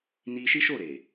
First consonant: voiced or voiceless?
voiced